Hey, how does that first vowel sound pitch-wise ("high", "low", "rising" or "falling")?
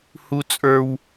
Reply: high